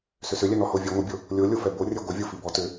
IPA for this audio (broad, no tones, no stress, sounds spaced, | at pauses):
s ʏ s ʏ lʲ ɛ n ɔ h o vʲ ɛ ŋʷ ɪ bʲ o | lʲ o lʲ o f ɛ b o rʲ ɛ ɡʷ ɪ vʲ o f i b ɔ t ʏ